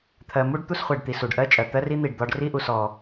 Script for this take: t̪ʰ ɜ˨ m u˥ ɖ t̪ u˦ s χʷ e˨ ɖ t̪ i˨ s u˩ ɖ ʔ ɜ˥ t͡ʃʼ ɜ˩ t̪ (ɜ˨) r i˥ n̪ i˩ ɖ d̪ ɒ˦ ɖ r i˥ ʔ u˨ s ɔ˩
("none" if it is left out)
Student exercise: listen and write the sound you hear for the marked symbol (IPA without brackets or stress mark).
ɜ˥